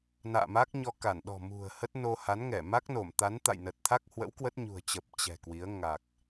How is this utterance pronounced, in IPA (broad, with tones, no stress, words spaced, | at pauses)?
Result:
na̰ː˧˨ma˦˥k̚ɲɔ˧ ka˧˩nɗɔ̤˨˩ mṳ˨˩ə̯hə˦˥t̚ no˧ ha˨˦nŋɛ˧˩ ma˦˥k̚no˧˩mt̪a˨˦n t̪a̰˧˨jnə˨˩t̚t̪ʰa˦˥k̚hwə̰˧˥w kwə˦˥t̚ɲṳ˨˩ə̯t͡ɕə˨˩p̚ t͡ɕɛ̤˨˩kwi˨˦ə̯ ŋa˨˩k̚